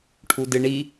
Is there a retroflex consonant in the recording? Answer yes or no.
yes